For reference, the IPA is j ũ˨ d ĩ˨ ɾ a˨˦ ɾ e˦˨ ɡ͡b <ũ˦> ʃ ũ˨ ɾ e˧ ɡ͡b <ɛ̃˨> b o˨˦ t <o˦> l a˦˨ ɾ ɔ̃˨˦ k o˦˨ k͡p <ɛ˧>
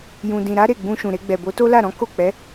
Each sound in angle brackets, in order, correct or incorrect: incorrect, incorrect, correct, incorrect

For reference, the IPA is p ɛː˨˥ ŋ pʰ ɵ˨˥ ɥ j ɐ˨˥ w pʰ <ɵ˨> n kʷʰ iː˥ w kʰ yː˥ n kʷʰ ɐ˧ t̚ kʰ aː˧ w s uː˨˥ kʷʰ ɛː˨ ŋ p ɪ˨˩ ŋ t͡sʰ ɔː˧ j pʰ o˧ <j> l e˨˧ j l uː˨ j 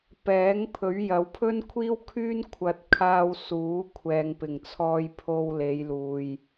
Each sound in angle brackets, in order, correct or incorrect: incorrect, incorrect

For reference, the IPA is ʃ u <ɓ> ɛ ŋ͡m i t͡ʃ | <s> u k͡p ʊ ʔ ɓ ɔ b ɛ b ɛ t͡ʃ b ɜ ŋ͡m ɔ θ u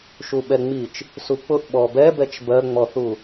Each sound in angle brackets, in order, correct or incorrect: correct, correct

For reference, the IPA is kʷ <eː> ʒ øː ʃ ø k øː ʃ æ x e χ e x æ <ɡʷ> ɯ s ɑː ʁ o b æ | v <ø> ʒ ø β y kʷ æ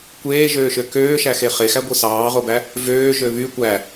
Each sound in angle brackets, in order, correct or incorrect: correct, correct, incorrect

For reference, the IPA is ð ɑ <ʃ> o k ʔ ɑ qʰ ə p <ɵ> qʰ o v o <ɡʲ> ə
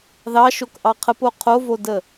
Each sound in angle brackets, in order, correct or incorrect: correct, incorrect, incorrect

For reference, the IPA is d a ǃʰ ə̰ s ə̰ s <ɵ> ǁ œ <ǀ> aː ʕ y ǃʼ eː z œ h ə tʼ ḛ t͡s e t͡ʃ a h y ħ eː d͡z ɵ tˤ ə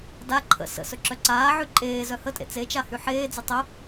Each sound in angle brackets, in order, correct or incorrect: correct, correct

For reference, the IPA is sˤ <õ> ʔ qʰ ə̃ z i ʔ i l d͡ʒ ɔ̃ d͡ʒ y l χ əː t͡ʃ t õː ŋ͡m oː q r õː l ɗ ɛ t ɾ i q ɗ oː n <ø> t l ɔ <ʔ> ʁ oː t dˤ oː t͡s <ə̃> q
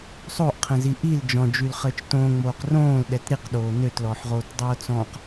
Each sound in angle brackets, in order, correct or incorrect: incorrect, correct, incorrect, incorrect

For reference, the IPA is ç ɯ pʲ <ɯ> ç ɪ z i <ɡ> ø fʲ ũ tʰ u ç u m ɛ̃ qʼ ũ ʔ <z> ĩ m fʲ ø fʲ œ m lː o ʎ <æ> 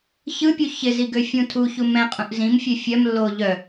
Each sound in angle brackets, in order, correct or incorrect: incorrect, correct, correct, incorrect

